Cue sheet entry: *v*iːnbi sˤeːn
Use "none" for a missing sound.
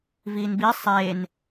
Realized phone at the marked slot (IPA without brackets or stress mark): v